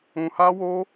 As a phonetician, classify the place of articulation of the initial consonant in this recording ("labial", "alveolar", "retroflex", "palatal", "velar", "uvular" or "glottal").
glottal